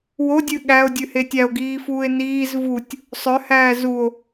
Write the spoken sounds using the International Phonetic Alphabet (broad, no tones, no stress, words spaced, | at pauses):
wodʲʉ ɠæo̯dʲʉhe tʲæo̯ɡiːfuːe̯ niːz vutʲ | sˤœhæː zuo̯